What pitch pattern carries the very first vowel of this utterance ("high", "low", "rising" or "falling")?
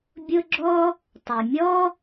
high